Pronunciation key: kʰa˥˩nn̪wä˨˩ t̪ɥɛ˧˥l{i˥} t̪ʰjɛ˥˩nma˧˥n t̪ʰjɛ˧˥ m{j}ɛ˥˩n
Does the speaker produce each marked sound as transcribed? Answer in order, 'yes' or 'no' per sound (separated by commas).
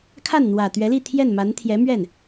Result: no, no